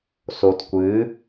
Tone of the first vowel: low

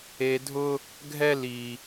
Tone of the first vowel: high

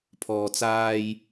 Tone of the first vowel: low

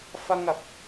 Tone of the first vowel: high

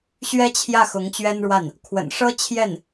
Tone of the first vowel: high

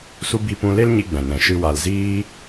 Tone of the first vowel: high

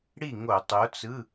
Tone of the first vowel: falling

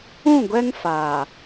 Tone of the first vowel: falling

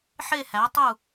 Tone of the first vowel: falling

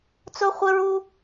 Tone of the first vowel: high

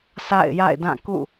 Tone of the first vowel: falling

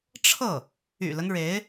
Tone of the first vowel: falling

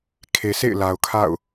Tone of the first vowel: low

